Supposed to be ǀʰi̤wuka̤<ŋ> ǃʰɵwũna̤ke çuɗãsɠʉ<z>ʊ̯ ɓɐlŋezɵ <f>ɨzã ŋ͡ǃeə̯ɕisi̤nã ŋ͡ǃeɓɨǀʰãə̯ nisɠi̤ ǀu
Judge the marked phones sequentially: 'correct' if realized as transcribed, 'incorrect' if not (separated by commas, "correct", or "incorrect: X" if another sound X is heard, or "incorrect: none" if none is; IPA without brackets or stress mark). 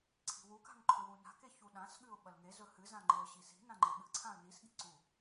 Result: correct, incorrect: none, incorrect: h